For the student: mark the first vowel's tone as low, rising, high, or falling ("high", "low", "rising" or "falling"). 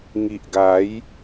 low